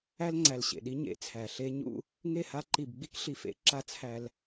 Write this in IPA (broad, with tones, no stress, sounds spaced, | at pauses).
æ˦ l ŋ͡ǀ æ˨ l ɕ ḛ˨ ɗ i˦ ɲ ḛ˨ t͡sʰ æ˨ ɬ e˦ ɲ ṵ˦ | ŋ e˦˨ h a˦ ǃ i˨ b ɡ͡b i˦ k ɬ i˨ f ḛ˨˦ ǁ a˦ t͡sʰ æ˦ l